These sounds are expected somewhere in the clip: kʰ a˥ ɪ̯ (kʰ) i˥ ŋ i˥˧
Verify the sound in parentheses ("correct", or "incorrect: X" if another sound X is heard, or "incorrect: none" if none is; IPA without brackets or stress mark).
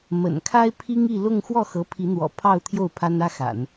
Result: incorrect: pʰ